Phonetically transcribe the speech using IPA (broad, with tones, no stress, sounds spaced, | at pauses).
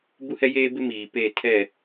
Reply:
b u˦ h ɛ˦ j eː˦ b ɪ˦ m iː˨ p eː˦˨ tʰ ɛ˦˨